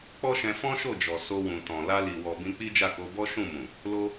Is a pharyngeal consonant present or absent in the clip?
absent